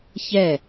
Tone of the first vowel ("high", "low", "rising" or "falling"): falling